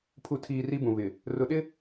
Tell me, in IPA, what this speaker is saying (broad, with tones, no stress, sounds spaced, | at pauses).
pʰ u˨ tʰ iː˨ r i˦ b ũ˨ β ɪ˨ | r ʊ˨ ɗ ɪ˦